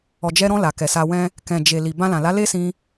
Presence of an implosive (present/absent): absent